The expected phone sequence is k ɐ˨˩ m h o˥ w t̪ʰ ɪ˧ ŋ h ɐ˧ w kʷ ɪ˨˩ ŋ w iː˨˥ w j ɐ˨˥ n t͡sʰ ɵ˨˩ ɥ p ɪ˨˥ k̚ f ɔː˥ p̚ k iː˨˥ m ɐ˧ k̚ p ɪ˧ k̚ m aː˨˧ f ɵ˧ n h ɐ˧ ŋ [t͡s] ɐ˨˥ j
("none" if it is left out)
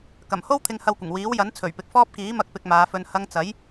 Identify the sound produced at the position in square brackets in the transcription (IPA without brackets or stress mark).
t͡s